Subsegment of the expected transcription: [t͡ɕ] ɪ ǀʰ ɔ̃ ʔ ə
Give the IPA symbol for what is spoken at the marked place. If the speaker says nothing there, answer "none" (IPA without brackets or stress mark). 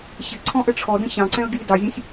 ɕ